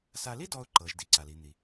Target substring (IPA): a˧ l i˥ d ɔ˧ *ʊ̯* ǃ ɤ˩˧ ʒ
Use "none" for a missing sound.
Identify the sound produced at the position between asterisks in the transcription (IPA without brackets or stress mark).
ʊ̯